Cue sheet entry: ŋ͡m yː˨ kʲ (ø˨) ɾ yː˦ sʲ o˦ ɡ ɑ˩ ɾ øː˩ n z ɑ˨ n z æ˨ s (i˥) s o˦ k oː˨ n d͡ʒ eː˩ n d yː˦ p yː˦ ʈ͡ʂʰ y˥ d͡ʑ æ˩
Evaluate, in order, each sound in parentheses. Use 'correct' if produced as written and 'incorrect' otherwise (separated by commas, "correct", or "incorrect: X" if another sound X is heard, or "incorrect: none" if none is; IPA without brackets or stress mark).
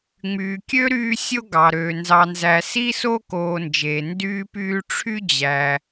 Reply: incorrect: ø˥, correct